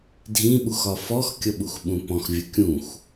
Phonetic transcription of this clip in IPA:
dʱ ĩ ɓ u x ɒ f ɔ x kʲ ʌ ɓ u x ɓ ũ p ɔ̃ x vʲ ə kʲ ũ x

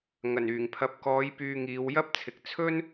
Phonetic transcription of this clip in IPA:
ŋ ɐ˨˩ n yː˨˩ ŋ pʰ ɐ˨ p̚ k ɔː˨˧ j p yː˧ ŋ iː˨˧ w j ɐ˥ p̚ t͡sʰ ɪ˨˥ k̚ t͡sʰ ɵ˥ n

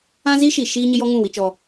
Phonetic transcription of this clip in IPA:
ã˦ z iː˦ ʃ i˨ ʃ iː˦ ɲ ɪ˦ j ɔ˦ ŋ ũ˦˨ w i˦ t͡ʃ ɔ˦

